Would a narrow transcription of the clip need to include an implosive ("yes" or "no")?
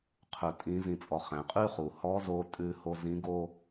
no